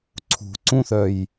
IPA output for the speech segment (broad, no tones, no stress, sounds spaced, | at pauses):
ǀʰ ṳ ǀ ũ θ œ j